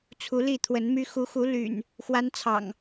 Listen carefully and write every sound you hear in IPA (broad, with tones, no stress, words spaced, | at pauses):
t͡sʰu˨˦li˥˨t̪ʰwə˨˦nmy˦ xu˨˦xu˨˦ ly̰˨˩n | xwa˦nt͡sʰɑ̰˨˩ŋ